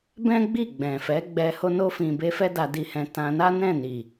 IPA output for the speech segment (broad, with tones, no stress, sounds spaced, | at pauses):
b ɛ̃˦ ɡ͡b i˦˨ ɡ͡b ɛ̃˨ f ɛ˨˦ ɡ͡b ɛ˧ h o˧ n o˧ f ĩ˨ b e˧ f ɛ˦ d a˧ d i˧ h ɛ̃˧ t ã˧ n a˦ n ɛ̃˦˨ n i˨